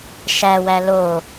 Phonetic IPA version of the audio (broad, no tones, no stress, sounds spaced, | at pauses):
ʃ æ w æ l o